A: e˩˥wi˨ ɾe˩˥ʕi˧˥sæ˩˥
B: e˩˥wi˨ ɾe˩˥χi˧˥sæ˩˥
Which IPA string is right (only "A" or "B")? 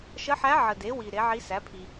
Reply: A